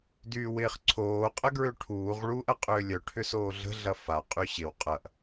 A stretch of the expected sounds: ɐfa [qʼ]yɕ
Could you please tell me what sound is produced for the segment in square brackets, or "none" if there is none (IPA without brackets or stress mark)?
qʼ